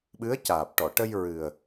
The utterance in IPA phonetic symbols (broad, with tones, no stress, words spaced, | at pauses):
ɓɨ˧˥ə̯caː˨˩p̚ʈɔ˨˩˨ʈə˧j ɹɨ˨˩ə̯